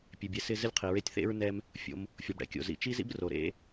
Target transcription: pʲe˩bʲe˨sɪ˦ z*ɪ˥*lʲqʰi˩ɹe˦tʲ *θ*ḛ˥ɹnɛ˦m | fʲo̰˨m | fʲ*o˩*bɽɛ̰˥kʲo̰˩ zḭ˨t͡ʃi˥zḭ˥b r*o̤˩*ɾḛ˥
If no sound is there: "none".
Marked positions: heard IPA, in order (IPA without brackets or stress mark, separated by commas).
ɪ˥, θ, o˩, o˩